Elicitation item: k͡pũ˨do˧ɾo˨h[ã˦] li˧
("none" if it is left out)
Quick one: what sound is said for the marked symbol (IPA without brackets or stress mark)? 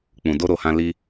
ã˧